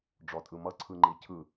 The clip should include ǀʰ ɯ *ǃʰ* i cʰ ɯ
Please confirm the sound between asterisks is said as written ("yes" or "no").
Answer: no